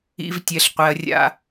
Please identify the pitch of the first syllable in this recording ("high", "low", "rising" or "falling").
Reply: high